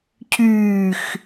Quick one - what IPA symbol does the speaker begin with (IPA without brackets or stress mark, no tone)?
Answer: cʰ